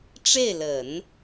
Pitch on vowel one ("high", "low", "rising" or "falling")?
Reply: falling